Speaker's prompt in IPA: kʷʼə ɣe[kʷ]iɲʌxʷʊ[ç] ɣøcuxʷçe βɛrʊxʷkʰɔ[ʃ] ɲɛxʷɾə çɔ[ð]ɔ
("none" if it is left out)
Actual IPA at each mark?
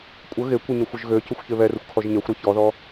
kʷ, ʒ, ʒ, ð

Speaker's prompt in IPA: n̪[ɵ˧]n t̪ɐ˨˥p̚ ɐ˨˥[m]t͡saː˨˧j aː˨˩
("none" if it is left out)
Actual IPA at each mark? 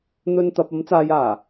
ɵ˧, m

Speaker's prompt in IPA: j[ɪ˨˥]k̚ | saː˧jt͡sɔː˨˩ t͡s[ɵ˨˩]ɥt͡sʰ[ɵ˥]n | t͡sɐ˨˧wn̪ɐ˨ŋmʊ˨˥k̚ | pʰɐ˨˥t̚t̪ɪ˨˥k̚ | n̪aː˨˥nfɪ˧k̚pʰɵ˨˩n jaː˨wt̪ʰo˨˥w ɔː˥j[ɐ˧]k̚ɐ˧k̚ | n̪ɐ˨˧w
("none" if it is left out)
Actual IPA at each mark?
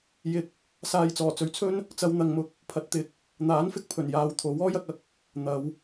ɪ˨˥, ɵ˨˩, ɵ˥, ɐ˧

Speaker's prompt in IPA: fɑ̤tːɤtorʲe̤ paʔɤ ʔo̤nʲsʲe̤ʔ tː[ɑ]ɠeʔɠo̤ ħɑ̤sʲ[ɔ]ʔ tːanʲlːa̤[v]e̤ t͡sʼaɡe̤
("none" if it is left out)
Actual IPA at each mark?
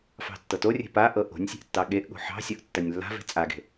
ɑ, ɔ, v

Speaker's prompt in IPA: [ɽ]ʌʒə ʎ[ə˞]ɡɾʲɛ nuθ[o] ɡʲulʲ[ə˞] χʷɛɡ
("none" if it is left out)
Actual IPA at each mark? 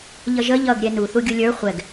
ʎ, ʌ, u, ə˞

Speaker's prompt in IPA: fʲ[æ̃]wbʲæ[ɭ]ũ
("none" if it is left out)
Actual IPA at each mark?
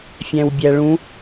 æ̃, ɭ

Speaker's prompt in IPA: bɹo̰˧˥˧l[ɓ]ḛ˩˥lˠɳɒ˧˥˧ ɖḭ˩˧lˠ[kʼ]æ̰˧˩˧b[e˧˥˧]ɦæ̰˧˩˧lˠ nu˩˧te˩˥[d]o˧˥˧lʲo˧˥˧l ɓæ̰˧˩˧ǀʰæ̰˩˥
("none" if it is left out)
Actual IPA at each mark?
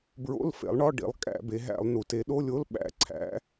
f, kʼ, e˩˧, ɗ

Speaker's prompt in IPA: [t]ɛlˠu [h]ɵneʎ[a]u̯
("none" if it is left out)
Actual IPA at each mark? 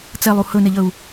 t͡s, h, ə

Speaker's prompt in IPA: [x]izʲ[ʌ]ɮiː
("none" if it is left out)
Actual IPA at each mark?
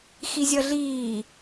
x, ʌ

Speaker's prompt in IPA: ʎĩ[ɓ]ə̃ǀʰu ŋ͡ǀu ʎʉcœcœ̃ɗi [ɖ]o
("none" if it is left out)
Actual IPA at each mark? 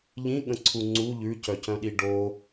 ɠ, ɖ

